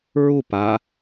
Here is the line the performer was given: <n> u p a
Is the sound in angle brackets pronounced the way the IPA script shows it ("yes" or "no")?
no